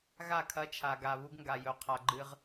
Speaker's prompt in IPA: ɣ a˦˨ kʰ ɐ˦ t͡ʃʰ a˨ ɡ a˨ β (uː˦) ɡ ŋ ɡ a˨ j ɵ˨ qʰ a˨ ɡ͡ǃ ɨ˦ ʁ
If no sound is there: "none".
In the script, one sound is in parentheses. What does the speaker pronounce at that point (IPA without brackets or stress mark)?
u˦